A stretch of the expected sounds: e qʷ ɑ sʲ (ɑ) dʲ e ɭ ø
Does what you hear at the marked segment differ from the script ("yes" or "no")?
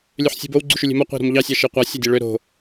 no